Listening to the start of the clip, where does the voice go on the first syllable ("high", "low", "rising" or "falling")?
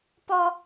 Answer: high